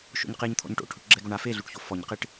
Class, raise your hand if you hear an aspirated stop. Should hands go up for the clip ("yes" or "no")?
yes